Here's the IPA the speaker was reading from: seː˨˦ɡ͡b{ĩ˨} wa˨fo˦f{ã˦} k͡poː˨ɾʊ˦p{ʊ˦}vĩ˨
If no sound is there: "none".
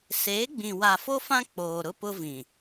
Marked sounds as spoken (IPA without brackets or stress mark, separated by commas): ĩ˨, ã˦, ʊ˦